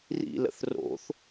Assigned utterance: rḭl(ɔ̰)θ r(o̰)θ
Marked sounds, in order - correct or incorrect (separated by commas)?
incorrect, correct